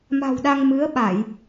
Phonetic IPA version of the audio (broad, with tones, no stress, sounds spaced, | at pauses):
m a̤˨˩ w ɗ a˧ ŋ m ɨ˨˦ ə̯ ɓ a˧˩˨ j